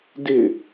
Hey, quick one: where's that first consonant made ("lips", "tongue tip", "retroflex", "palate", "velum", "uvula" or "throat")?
tongue tip